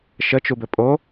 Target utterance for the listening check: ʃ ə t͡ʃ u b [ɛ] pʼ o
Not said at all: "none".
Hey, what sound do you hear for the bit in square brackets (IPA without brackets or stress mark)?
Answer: ɘ